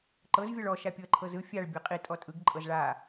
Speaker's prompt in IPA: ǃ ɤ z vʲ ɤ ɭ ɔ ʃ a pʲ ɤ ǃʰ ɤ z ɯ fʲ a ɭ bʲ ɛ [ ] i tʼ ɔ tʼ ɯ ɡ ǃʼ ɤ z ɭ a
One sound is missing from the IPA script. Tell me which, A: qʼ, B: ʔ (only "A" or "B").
A